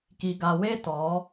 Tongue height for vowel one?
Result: high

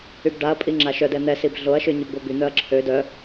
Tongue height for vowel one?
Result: high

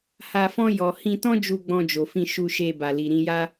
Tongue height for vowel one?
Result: low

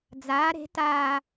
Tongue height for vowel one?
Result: low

